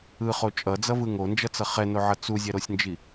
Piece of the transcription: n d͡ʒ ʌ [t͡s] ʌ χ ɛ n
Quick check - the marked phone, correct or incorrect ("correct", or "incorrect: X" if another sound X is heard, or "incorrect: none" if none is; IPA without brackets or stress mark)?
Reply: correct